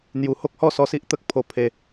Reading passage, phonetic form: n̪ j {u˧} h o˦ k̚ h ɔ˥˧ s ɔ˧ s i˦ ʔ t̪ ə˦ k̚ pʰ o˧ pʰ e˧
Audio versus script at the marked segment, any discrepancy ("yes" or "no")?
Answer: no